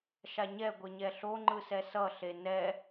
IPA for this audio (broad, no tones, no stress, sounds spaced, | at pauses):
ʃ a ɲ ɛ ɡʷ e ɲ ɛ ɬ o ŋ͡ǃ ɯ s ɛ s ʌ ɬ e n ɛ